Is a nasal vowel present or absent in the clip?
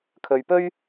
absent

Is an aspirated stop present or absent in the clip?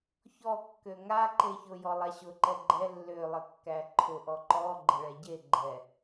present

